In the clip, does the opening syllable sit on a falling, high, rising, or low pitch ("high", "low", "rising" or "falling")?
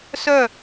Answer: falling